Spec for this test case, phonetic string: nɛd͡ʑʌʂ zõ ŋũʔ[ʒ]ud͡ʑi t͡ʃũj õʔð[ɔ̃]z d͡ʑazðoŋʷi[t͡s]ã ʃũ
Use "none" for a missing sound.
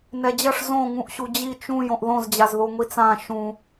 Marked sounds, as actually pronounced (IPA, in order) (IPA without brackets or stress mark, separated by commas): ɕ, õ, t͡s